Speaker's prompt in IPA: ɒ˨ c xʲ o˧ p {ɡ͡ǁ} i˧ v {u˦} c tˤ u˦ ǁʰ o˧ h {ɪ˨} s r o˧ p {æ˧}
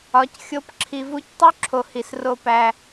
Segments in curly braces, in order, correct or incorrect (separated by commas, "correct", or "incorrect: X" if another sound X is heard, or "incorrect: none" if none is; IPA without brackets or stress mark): incorrect: ǁʰ, correct, incorrect: i˨, correct